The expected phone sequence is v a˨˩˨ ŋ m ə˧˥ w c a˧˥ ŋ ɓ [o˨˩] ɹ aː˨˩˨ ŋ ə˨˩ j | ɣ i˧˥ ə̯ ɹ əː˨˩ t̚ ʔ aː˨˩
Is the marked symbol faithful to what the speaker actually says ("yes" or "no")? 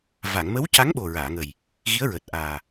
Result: yes